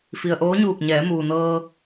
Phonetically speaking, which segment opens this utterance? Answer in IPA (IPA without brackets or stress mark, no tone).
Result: f